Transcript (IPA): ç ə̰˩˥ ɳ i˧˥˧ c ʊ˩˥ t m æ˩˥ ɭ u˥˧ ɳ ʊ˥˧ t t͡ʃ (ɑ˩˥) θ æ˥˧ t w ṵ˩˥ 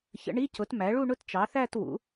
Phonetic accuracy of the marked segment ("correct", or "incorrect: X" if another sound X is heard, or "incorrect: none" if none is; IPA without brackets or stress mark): correct